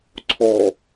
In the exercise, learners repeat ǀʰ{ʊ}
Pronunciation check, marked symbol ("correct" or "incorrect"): incorrect